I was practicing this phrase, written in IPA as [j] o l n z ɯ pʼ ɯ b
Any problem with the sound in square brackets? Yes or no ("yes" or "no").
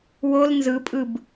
yes